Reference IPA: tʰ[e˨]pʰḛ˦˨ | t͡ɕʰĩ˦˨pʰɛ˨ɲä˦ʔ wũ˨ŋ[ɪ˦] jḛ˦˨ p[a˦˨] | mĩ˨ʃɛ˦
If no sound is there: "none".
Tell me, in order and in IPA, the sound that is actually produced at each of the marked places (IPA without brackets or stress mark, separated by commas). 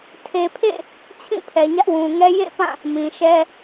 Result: e˨, ɛ˦, ã˦˨